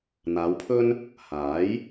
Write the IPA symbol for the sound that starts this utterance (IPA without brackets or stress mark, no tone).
n̪